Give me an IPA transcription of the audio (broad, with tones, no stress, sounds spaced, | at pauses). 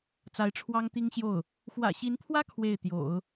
t͡s a˧˥ ɪ̯ ʈ͡ʂʰ w ɑ˥ ŋ t̪ i˥ ŋ ɕ j o˥˩ ʊ̯ | x w ä̰˨˩ ɕ i˧˥ n pʰ w ä˥ kʰ w e˥˩ ɪ̯ t̪ j o̰˨˩˦ ʊ̯